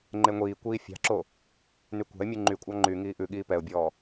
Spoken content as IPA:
ŋ͡ǃ e ŋʷ iː kʷ iː fʲ ɑ̤ ǁ o | n y kʷ ɑ̤ ɪ̯ mʲ ʉ ŋ͡ǃ y kʷʼ ɑ ŋ͡ǃ y ŋ iː ʔ ʉ ɠ iː p ɛ ʊ̯ bʲ ɔː

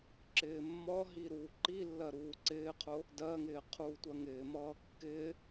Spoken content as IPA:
ǁ ɪː mː ɒ ɦ i ɾ uː ǃ i lː ɜ ɾ uː ǀ ɪː qʰ ʊ | d ɜ ŋ ɪː qʰ uː tʷ ɜ ŋ ɪː m ʌː kː ɪ

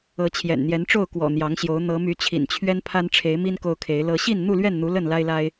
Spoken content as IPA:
ɤ˨˦ t͡ɕʰ j ɛ̰˨˩ n n̪ j ɛ˨˦ n ʈ͡ʂ o˥˨ ʊ̯ k w ɔ̰˨˩ n̪ j ɑ˨˦ ŋ ɕ j o˨˦ ʊ̯ n̪ ɤ˨˦ m y˨˦ t͡ɕʰ ḭ˨˩ n t͡ɕʰ ɥ ɛ˦ n pʰ a˦ n ʈ͡ʂʰ e˨˦ ɪ̯ m i˦ n k o˦ ʊ̯ kʰ e˨˦ ɪ̯ l ɤ˦ ɕ i˥˨ n n̪ u˥˨ l ɥ ɛ˥˨ n n̪ u˨˦ l ə˥˨ n l a˦ ɪ̯ l a˦ ɪ̯

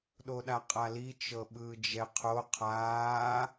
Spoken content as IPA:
ɗ o ɗ a qʼ a l i t͡ʃ ɤ ɓ ɯː d͡ʒ ɛ qʰ o qʰ aː

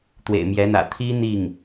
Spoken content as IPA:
t̪ w ḛ˨˩ ɪ̯ m j ɛ˧˥ n̪ ä̰˨˩ t̪ʰ i˥ n̪ i˥˩ ŋ

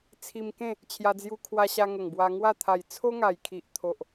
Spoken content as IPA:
t͡sʰ i˧ m k ẽ˥˧ | t͡ɕʰ j a˧ d͡z j u˧ kʰ w a˧ ɕ a˧ ŋ ə˨˩ ŋ b w a˧ ŋ w a˥˧ t̪ʰ a˨˩ j t͡sʰ o˦ ŋ a˨˩ j kʰ i˨ ʔ t̪ʰ o˨ ʔ

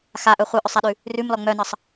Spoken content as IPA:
x a ʔ œ χʷ œ ʔ œ sˤ æ ɗ ʉ | r ʉ m l ɔ ŋ͡m œ n ə sˤ

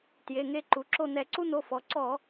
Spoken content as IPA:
t j e˩˧˩ ŋ e˦˨ ǃ u˩˧ ǁ o˦˨ n̪ ɛ˧˩˧ ǀ u˦ n̪ o˩˧˩ f ɔ˩˧ ǀ ɔ˧˩˧

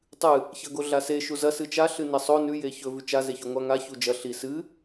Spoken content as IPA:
tˤ ɨ | ç ɐ ɡ o ɮ a s e ʃ u z ɐ s ɨ t͡ʃ a ɬ ɨ n e sˤ o n ʉ j e ç ɵ v ʉ t͡ʃ a z e ç ʉ ŋʷ a ŋ a ç u d͡ʒ ɐ ɬ i s ɨ

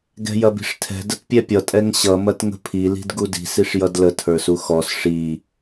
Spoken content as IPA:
ɡ ɛ̤ j ɐ b i̤ ʂ tʰ ɛ̤ d ə t pʲ ɛ pʲ ʌ tʼ ɛ ŋ ɕ ʌ m ɐ t ŋ ə̤ pʰ i l i̤ d ɡ u d i̤ s i ʂ j ʌ d l ə tʰ ə˞ s u x ɔ s ʂ i

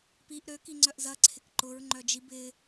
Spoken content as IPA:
p i ʔ ɾ ø k i ŋ͡ǀ œ ʔ z ɐ ǀʰ ɪ k ǃ ʊ ɹ ŋ͡ǃ œ d͡ʒ i b ɪ

